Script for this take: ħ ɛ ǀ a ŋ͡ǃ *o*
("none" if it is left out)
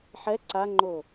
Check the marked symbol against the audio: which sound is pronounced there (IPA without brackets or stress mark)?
o